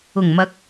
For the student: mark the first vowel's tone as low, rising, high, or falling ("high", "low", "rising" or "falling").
low